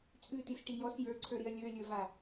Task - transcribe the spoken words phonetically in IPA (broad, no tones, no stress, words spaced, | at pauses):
t͡sʼʉtisʈi jɔs jə˞ǀʰə˞ɾiɐ̯ lʲə˞lʲə˞va